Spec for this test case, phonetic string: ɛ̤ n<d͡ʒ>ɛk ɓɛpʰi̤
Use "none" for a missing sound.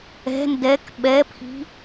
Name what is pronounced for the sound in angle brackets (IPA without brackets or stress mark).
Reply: d